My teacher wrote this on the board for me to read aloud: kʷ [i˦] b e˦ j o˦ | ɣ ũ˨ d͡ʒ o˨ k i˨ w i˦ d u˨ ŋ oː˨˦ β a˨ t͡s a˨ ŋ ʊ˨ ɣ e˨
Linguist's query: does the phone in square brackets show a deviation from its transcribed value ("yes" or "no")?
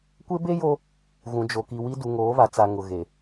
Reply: yes